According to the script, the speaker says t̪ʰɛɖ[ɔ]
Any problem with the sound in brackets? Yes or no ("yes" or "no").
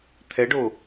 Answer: yes